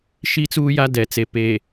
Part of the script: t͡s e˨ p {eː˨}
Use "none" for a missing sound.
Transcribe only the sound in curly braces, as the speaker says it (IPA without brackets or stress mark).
eː˨